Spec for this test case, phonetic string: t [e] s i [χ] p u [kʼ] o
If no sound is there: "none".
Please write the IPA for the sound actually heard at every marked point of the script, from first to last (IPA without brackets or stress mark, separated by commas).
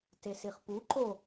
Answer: e, χ, ǃ